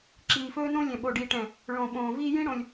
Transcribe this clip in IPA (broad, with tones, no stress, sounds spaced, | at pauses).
ǁ iː˨ f ɵː˦ n õ˦ lʲ ɛ̃˨ ɓ o˨ ɖ iː˨ ʈ ɛ̃˨ | ɭ õ˨ ɓ õː˨ v iː˦ j ĩ˦ ɽ õ˨ lʲ